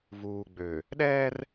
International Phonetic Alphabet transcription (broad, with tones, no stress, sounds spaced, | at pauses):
v uː˨ ɡ͡b ø˨ | ɗ ɛː˦ r